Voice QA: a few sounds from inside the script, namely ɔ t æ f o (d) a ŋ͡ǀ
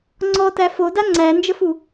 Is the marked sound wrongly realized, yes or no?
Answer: no